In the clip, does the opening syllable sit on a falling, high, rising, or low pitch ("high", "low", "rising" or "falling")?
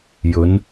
rising